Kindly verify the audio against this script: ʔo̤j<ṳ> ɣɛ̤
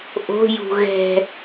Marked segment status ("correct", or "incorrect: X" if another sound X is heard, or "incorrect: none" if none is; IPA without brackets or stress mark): correct